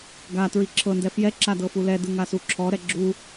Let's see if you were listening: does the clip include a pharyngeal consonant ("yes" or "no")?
no